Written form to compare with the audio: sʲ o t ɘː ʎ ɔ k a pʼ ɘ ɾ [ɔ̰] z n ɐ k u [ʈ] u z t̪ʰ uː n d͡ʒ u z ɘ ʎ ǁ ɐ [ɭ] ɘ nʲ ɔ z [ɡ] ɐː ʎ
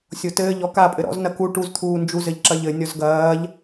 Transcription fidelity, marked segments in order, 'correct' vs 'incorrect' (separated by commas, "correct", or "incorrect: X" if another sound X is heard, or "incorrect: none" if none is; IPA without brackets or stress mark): correct, correct, incorrect: ʎ, correct